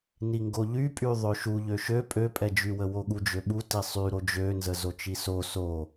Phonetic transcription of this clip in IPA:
n i ŋ ɡ o ʎ y pʼ y ðˤ ø ʃ u ʎ ø ʃ ø pʼ ø pʼ ɛ d͡ʒ y w ə w o ɠ u d͡ʒ ø ɓ u t i sˤ y ɾ o d͡ʒ ø n z ə z o t͡ʃ i s o s o

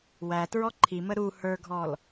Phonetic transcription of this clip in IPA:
w æ t ɹ ɔ ǃʰ i m ə ɾ u h ə˞ ɡʱ ɔ l

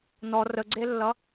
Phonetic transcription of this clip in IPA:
n ɔ r ə ɡ͡ǀ e lː ʌ

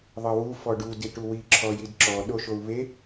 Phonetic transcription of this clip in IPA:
ðˤ ɤ w u f ɔ ɖ u d i ʈ u w i ǁʰ ɔ j i d ǁ ɔ ɗ o ʃ o u̯ β e

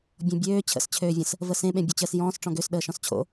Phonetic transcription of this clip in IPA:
bʲ ɔ̃ bʲ øː t͡ɕʰ ə̰ s t͡ɕʰ øː vʲ ə̃ s | v ə s ẽ ɓ ẽ bʲ o t͡ɕ əː s j ɔ̃ː s ʈ͡ʂ ɔ̃ ɡ ø s ɗ əː ʃ ɔ̃ s t͡ɕʰ o̰

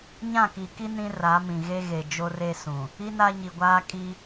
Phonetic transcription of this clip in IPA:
ɲ ã˦˨ k i˨ k i˦ n ĩ˦ r a˨˦ m ĩ˨ ɣ e˦ ɣ e˨ d͡ʒ o˦ r e˦ s ũ˨ | i˦ n a˦ ɲ i˨ ɡʷ aː˦ kʼ i˦

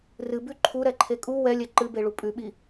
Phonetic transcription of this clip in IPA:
r ɨ b ʉ ǃʰ u ɾ ɛ ǃʰ e kʼ u w ɛ lʲ ɛ ǃ ɨ b e ɭ u pʼ ʉ ɓ i

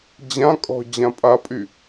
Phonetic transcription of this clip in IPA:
d͡ʑ ã kʼ ɔ̤ d͡ʑ ã pʼ a pʼ y

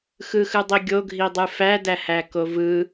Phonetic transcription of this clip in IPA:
x ɯ x ɯ dˤ i ɡʲ o ɡʱ i dˤ ɯ f æ d æ h æ k o v ɯ

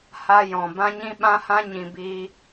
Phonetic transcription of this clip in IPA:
h a˦ j ɔ̃˨ b ã˦ ɲ ĩ˦ ɓ ã˦ h ã˦ ɲ ĩ˨ b iː˧

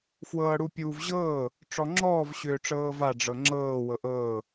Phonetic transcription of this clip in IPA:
f w ɤː ɽ u pʲ uː v ʑ ɤː | ʈ͡ʂ ɔ ŋ͡ǁ ɔː v ɕ ʏː ʈ͡ʂ ɤː v a ɖ͡ʐ ɤ ŋ͡ǁ ɤː w ɤ ʔ ɤː

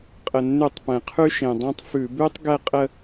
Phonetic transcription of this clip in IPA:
qʼ ə˩ nː ʉ˧˩˧ tˤ p ɛ̃˩ qʰ ʉ˥ ʃ ẽ˩ dˤ ẽ˥ tˤ f ʉ˧˩˧ b ʉ˥ tˤ ɡ ɛ˥˧ qʼ ə˥˧

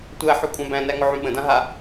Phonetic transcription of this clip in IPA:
tʷ æ ħ ʉ kʷʼ ã b æ̃ n æ ŋ ʊ ʕ ũ ɓ ə̃ d ã ɦ a

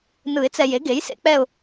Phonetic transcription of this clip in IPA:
n ɯ˨˩˦ ɪ̯ t͡s ɛ˨ j e˩˥ ɡ e˩˥ j s ḛ˩˥ k͡p ɛ˥˧ ʊ̯

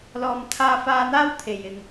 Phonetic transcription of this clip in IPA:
l ɔː˨ m t̪ʰ aː˧ f aː˧ n̪ aː˥ w t̪ʰ e˨ j ɪ˨ ŋ

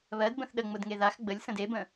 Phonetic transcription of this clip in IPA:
β ɜ d b ə̃ θ ɗ ə ŋ͡m ʊ d ŋ e ð a x ɡ͡b ə lʲ s ə̃ d e b ə̃

